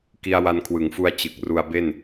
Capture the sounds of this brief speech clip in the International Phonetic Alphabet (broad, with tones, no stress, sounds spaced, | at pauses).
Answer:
k i˧ a̯ w a˧ n kʰ w ɯ˩˦ ŋ f u˧ a̯ t͡ɕ ɯ˨˩ k̚ r u˧ a̯ b e˥˩ n